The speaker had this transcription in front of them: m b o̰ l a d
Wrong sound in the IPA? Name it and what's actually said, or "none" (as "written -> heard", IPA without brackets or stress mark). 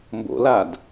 none